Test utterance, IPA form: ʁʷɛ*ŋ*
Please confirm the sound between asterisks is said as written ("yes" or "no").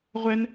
no